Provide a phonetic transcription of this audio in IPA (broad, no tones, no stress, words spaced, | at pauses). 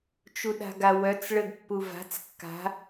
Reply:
t͡ʃuɗa̤ɡawœt͡s ɭəɡpːuva̤t͡s kːa̤